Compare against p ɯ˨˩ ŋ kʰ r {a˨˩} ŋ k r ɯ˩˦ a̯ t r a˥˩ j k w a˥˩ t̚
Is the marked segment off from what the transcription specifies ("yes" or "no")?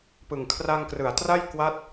yes